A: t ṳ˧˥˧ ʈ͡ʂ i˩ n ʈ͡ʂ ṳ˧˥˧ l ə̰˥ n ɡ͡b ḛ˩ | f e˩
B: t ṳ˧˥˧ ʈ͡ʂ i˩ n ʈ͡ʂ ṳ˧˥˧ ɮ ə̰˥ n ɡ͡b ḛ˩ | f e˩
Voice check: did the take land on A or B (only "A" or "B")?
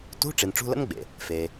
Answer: A